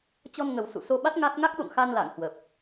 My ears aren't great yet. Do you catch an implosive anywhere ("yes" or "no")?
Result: yes